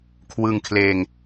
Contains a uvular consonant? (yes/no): no